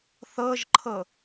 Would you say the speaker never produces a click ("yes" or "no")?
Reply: no